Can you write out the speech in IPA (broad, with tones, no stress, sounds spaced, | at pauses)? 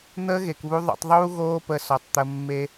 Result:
n̪ əː˦ ɣ e˨ k β u˦ ðˤ o̰˧ tˤ ðˤ uː˦ ɣ oː˦ p ə˧ s ɔ˨ tˤ t̪ ə˧ mː e˦